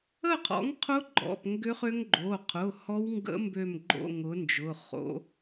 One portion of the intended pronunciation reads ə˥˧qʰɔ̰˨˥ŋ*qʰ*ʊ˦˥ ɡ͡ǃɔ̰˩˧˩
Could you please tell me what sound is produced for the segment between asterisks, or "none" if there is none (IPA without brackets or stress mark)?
qʰ